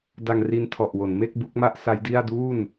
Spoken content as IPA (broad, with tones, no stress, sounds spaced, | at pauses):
d a˧ ŋ r i˧ n tʰ ɔ˨˩ ʔ w o˩˦ n m e˥˩ k̚ b u˦˥ k̚ m a˥˩ ʔ s a˦˥ j d i˥˩ a̯ d uː˥˩ n